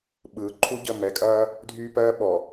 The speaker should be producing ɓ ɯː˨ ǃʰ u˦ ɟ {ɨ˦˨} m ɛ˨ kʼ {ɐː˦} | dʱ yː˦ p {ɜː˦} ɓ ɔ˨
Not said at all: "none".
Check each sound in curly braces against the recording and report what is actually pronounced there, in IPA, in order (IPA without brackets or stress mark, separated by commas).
ə˦˨, ɐː˦, ɜː˦